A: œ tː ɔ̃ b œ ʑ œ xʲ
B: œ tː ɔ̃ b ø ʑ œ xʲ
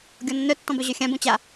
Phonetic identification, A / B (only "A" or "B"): A